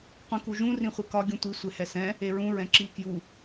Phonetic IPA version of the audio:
qʷ ĩ k u ʒ ũ r ĩ χʷ i k ɒ ɡʲ ũ tʷ i sʷ e h ɛ s ɛ̃ | e ɹ ũ ɹ ɛ̃ ǁ i k j u

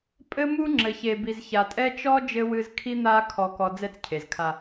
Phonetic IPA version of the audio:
pʼ ɘ˦ m u˦ ŋ͡ǁ ɘ˨ ç e˨ b i˨ z ç a˨ tʼ ɛ˦ t͡ʃ ɔ˦ d͡ʒ ɘ˦ w ɨ˦ z kʰ i˦ n̪ a˦ kʰ ɔ˦ k ɔ˦ d͡z ɛ˦ t͡s cʰ e˨ z kʰ a˦

